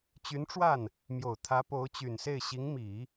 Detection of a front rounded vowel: present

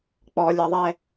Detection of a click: absent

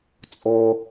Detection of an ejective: present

